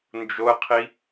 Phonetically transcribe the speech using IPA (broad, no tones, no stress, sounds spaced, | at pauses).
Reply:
n d͡ʒ o ə̯ qʰ i